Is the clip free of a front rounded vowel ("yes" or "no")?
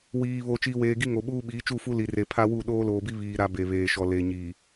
yes